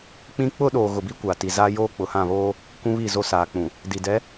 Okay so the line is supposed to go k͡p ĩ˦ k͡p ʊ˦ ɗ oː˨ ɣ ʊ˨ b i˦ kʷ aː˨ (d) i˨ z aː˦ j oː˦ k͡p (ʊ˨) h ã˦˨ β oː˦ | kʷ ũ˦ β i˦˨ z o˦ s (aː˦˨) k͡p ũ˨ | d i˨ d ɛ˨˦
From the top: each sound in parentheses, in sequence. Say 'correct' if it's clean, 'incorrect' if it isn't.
incorrect: t, correct, incorrect: aː˨

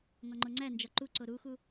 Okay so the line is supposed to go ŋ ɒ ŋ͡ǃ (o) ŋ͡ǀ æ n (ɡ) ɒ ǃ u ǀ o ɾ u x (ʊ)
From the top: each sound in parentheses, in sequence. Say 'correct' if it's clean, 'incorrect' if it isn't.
correct, incorrect: d͡ʒ, incorrect: u

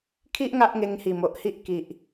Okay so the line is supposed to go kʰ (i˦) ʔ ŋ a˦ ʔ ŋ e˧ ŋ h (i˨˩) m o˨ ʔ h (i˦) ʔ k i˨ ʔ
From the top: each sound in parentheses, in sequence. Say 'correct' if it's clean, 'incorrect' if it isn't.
correct, correct, correct

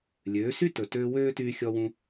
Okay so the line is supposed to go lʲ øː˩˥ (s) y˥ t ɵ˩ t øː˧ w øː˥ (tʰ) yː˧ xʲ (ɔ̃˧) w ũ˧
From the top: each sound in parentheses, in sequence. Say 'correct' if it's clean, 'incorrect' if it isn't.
correct, incorrect: t, incorrect: ɔ˧

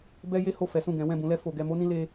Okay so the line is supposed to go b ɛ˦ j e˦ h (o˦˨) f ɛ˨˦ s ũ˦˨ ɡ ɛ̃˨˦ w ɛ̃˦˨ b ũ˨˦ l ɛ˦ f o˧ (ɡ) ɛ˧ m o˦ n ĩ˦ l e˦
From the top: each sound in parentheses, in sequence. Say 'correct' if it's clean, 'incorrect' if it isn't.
correct, correct

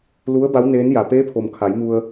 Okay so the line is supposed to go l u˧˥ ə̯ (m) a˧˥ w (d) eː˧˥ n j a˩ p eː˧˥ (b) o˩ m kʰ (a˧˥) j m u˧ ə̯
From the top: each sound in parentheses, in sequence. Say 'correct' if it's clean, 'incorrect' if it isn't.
incorrect: b, incorrect: n, incorrect: pʰ, incorrect: a˩˧

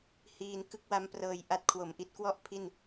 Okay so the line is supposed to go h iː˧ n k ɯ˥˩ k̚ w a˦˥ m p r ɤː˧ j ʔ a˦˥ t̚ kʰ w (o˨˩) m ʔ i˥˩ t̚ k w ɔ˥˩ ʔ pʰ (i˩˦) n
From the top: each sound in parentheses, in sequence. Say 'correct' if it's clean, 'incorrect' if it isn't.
correct, incorrect: i˥˩

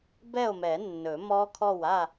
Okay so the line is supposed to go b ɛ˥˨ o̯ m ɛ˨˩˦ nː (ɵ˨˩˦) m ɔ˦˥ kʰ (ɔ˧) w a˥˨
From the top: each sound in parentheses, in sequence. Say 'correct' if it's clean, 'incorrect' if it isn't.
correct, incorrect: ɔ˥˨

